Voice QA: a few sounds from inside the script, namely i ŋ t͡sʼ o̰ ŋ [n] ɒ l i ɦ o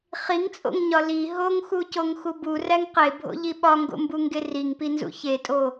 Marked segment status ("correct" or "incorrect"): incorrect